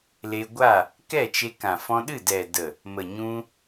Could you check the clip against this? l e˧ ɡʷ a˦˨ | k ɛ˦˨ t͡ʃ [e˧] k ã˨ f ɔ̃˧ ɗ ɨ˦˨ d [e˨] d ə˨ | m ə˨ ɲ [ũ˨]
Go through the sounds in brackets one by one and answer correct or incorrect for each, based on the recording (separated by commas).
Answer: correct, incorrect, incorrect